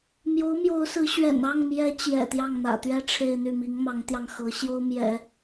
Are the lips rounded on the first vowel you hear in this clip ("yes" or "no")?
yes